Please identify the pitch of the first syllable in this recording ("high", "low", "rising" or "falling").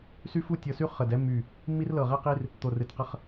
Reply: high